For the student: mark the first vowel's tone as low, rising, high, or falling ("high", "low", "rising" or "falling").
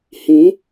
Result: rising